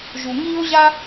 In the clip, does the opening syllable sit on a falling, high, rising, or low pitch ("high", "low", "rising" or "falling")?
low